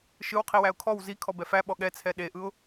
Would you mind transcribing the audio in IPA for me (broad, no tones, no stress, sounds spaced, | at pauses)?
ʃ ɯ w qʰ i w æ ʊ̯ kʰ ɔ w z i kʰ ɔ b ɛ f æ ɓ ɔ ɠ ɛ t͡sʰ ɛ ɗ e ʔ ɯ ʊ̯